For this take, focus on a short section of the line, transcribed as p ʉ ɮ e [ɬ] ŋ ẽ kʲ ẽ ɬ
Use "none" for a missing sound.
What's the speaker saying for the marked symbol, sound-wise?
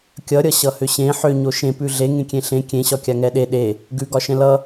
none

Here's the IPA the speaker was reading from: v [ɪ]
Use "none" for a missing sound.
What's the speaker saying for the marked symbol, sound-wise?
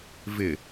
ɪ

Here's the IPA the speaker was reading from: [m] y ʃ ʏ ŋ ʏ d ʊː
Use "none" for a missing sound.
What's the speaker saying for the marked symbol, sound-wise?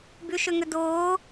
b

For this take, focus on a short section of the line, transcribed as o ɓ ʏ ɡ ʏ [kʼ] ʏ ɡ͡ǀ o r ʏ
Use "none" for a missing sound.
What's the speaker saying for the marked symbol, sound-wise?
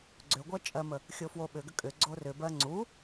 kʼ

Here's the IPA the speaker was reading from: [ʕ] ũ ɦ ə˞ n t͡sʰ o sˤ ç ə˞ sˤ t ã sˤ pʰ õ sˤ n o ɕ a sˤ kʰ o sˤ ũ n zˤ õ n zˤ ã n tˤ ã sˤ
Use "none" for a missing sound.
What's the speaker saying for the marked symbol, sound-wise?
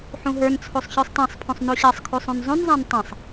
ħ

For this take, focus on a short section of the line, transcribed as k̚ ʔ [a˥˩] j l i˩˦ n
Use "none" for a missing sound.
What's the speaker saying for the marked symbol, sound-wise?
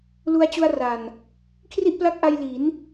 a˧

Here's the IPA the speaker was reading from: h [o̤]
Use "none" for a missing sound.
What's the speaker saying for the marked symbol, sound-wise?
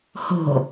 o̤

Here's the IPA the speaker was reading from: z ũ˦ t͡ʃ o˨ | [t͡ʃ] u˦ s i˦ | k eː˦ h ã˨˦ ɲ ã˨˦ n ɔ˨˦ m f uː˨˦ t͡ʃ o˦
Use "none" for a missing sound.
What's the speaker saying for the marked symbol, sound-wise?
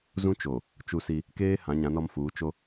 t͡ʃ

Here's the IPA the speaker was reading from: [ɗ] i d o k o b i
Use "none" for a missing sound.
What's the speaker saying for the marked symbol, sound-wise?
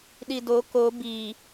ɗ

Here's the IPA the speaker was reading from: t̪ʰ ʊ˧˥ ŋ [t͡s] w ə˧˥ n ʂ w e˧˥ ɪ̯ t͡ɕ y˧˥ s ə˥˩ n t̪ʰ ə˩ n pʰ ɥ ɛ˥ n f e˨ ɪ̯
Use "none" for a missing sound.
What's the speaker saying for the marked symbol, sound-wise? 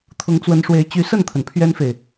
t͡s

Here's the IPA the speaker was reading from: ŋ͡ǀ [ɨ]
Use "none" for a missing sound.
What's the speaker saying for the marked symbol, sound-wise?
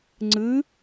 ɨ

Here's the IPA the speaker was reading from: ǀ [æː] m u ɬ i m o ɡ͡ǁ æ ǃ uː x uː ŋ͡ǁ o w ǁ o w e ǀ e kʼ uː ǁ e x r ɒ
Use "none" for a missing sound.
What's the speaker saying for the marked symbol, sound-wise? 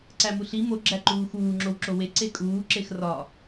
æ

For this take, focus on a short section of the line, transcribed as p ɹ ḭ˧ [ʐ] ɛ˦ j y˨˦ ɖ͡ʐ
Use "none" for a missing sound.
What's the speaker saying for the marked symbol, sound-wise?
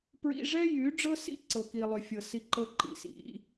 ʐ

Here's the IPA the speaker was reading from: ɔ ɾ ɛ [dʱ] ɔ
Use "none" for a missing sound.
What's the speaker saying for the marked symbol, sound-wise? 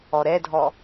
dʱ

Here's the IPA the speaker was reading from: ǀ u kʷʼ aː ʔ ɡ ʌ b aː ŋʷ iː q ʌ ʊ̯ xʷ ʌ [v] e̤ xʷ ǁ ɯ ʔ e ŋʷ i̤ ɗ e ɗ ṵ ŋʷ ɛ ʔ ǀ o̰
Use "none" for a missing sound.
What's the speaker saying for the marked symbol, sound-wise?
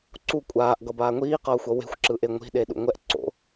w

